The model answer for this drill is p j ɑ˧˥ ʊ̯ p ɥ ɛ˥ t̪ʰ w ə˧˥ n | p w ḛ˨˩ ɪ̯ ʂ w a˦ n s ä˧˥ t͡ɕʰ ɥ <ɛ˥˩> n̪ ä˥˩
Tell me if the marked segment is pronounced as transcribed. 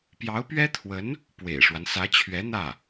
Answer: no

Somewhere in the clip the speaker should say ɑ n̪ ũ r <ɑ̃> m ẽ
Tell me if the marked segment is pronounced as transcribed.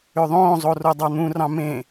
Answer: yes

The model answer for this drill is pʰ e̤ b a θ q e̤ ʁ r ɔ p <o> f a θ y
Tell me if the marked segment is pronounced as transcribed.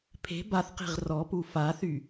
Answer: no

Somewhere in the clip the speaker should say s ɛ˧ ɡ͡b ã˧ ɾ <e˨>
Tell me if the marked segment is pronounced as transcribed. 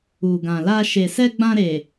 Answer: yes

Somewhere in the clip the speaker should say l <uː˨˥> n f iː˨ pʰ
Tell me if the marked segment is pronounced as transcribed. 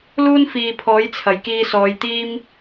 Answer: no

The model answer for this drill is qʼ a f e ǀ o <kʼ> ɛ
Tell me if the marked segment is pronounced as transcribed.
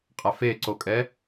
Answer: yes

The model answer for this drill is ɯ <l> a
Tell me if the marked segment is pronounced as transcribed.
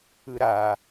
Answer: no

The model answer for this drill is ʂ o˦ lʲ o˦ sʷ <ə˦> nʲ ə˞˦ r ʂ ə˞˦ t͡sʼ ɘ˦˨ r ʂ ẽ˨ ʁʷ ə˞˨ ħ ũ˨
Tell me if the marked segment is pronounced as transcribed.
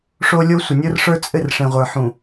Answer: no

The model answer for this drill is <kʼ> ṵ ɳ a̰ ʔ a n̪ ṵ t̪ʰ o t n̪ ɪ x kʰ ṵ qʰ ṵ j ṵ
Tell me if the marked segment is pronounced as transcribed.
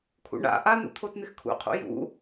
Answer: no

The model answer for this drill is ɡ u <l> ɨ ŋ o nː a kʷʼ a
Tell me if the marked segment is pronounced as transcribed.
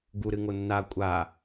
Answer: no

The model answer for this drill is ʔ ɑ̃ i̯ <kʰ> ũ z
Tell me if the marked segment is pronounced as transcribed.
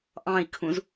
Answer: yes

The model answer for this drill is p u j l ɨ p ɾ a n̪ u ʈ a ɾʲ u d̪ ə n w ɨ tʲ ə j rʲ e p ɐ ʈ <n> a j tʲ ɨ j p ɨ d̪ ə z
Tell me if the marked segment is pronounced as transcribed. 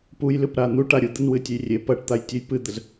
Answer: no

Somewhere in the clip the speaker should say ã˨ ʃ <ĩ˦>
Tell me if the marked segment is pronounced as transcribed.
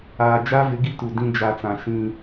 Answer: yes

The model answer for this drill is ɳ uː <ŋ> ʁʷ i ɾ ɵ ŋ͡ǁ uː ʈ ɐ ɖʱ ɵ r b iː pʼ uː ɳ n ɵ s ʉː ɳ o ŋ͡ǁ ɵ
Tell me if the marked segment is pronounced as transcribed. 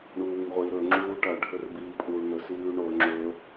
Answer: yes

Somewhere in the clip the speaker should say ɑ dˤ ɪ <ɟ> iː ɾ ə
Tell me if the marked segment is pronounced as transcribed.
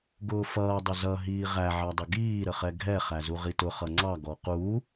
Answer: no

